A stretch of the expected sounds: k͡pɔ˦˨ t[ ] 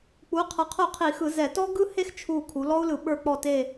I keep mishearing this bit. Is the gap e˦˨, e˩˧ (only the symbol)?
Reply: e˦˨